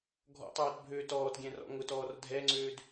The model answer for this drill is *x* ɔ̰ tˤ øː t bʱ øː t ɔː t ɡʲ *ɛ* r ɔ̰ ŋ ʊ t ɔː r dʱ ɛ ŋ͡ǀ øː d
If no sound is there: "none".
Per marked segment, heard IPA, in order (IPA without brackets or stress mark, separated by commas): ɡʱ, ɛ̃